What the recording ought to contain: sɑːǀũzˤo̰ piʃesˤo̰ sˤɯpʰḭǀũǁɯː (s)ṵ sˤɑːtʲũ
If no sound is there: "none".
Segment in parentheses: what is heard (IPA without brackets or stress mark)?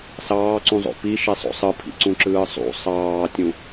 sˤ